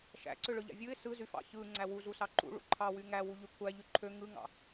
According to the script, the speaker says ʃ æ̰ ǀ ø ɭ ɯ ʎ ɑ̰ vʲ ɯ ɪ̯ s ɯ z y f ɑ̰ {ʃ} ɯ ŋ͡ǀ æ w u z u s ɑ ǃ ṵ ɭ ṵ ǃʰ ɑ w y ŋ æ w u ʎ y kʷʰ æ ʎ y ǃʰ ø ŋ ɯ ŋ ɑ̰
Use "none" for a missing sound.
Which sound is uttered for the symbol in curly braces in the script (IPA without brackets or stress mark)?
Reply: ç